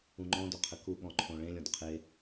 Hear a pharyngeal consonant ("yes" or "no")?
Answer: no